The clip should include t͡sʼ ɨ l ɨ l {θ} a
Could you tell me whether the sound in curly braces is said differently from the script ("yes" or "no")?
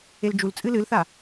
no